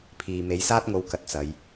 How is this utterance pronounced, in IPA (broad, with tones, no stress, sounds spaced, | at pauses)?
pʰ iː˧ m e˨˧ j s aː˥ t̚ ŋ o˨˧ w k ɐ˨˥ t̚ t͡s ɐ˨˧ j